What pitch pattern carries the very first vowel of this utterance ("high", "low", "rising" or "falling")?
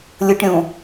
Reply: low